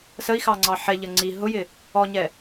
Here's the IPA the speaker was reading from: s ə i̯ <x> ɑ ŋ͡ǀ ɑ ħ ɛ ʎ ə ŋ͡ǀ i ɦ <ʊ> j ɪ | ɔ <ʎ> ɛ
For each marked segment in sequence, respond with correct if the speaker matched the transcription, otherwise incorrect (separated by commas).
correct, correct, incorrect